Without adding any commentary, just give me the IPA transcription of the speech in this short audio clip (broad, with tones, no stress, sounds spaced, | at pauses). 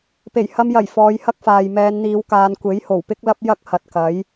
p e˨˩ j h ɐ˧ m j ɐ˨˩ j f ɔː˨˧ j h ɐ˥ k̚ f aː˨ j m ɛː˨˧ n n̪ iː˨˧ w k aː˨˧ n kʷ e˨˥ j h o˨˩ w p ɪ˥ k̚ l ɐ˥ p̚ j ɐ˥ k̚ h ɐ˨ t̚ k ɐ˨˥ j